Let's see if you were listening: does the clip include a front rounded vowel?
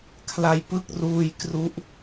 no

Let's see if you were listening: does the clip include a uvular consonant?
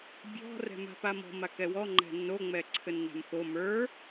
no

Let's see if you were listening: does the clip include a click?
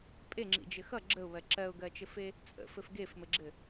yes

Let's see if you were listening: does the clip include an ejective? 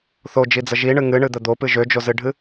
no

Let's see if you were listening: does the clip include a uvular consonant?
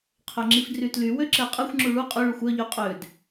yes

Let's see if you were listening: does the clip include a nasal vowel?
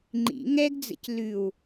no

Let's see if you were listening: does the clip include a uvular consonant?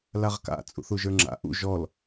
yes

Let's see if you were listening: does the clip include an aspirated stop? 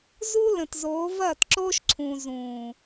yes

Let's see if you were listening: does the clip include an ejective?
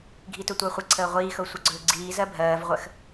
no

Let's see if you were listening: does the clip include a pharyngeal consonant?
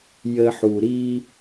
yes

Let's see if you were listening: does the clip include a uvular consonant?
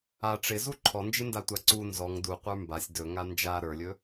yes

